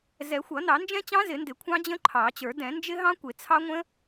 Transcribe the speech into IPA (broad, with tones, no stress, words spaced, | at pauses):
zɛ˨˩˦xʷʌ˨˩˦nɑ˨˩˦ nd͡ʒɛ̃˦˥t͡ɕɑ̃˦˥zɪ˨˩˦ndɪ˨˩˦ kʷʰɑ̃˦˥d͡ʑə̃˦˥ǃʰɑ˨˩˦t͡ɕə˞˨˩˦ dɛ̃˨˩˦nd͡ʒɪ˦˥ɦɑ̃˦˥ kʷɪ˨˩˦t͡sʰɑ˦˥ŋʷə̃˦˥